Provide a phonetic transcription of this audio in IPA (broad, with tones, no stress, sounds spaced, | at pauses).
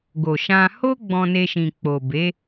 ɡ o˨ ʃ ã˧ h o˦ ɡ͡b ɔ̃˧ n e˧ ʃ ĩ˨ k͡p o˨ b e˨˦